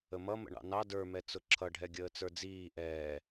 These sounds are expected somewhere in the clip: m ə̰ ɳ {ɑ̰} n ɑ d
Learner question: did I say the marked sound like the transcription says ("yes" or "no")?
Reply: yes